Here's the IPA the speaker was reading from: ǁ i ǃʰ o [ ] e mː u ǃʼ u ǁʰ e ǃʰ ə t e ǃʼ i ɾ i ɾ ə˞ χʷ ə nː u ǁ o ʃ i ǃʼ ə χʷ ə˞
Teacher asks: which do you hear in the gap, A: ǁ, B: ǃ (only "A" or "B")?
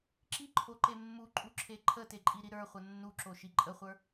B